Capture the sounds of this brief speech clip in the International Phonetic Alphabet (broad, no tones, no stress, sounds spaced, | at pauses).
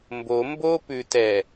m b o m b o p ʉ t ɛ